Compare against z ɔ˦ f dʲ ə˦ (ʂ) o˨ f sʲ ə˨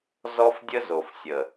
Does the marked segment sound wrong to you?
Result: yes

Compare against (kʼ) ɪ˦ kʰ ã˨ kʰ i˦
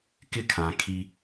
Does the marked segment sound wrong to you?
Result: yes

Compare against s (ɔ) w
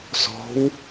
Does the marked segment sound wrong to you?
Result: yes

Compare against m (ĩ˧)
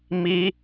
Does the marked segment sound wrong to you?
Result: yes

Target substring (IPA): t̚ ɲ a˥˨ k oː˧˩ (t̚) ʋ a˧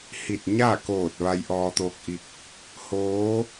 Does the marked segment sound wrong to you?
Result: no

